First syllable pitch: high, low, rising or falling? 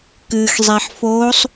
low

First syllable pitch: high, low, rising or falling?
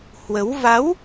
rising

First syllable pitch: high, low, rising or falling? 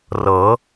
rising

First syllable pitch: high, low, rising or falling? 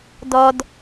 low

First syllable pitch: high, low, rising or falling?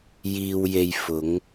low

